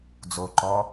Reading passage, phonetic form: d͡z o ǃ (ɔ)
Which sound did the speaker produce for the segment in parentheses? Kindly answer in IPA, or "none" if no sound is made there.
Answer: ɔ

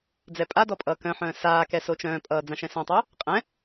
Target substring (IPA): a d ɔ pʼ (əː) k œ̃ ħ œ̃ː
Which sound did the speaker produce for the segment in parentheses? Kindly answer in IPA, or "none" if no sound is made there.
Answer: ʌː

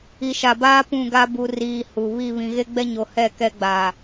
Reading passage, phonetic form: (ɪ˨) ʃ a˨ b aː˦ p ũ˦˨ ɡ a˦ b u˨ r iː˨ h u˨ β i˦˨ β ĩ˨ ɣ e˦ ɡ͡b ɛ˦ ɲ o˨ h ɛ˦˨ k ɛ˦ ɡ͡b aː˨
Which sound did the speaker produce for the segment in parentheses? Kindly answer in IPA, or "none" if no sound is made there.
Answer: i˨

